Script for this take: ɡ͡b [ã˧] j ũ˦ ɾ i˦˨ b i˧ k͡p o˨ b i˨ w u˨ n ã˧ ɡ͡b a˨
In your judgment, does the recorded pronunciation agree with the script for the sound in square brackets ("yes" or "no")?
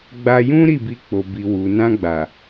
no